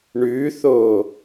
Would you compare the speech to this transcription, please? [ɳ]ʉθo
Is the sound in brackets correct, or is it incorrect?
correct